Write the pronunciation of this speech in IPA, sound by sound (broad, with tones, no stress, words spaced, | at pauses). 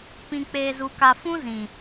pĩ˧k͡peː˧zu˧ka˧ fũ˦zĩ˨